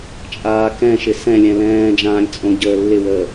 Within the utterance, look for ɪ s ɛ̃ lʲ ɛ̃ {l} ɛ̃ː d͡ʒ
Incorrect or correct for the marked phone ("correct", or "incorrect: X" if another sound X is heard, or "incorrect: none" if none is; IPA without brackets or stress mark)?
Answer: correct